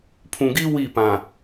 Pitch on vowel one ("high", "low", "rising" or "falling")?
low